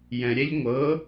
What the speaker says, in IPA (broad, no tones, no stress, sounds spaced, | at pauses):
j ɛ̃ ɾʲ ɛ ʎ ŋʷ ɤ